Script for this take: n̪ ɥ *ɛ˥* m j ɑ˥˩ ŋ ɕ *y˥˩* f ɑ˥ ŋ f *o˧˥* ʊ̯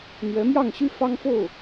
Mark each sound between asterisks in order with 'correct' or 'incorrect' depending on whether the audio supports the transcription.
incorrect: ɛ˧˥, incorrect: y˥, incorrect: o˥˩

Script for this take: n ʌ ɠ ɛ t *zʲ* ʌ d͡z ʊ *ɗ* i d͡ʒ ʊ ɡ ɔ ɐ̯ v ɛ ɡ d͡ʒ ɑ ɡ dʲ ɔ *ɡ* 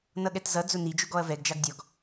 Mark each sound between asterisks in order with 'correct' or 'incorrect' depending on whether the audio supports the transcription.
incorrect: z, incorrect: n, correct

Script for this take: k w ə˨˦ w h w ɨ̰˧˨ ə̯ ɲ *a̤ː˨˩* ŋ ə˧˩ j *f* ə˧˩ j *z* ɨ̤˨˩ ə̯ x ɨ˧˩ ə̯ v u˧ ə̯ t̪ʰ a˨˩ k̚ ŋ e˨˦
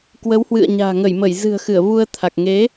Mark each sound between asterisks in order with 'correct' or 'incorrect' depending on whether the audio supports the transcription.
correct, incorrect: m, correct

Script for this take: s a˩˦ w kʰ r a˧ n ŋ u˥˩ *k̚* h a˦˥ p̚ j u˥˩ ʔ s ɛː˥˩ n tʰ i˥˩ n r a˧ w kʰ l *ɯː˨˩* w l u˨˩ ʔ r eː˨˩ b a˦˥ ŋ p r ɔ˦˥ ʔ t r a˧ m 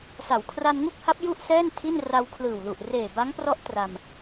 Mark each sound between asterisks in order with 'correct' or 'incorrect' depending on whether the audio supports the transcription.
correct, correct

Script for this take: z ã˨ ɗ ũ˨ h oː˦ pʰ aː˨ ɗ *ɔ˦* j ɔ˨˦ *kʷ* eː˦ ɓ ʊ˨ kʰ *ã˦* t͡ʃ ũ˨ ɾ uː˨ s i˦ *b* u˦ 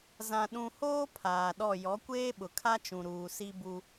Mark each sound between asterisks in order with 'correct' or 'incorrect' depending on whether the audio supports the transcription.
incorrect: ɔ˦˨, correct, incorrect: a˦, correct

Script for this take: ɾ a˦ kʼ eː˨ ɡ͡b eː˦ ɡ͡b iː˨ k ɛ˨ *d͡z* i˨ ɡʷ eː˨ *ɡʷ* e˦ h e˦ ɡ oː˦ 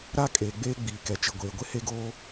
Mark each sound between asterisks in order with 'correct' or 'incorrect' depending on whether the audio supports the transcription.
incorrect: t͡ʃ, correct

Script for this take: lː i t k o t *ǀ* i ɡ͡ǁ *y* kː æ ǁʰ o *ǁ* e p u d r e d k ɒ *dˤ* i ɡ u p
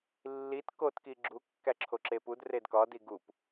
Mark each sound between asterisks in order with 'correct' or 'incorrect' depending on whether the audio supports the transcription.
incorrect: k, incorrect: u, correct, incorrect: d

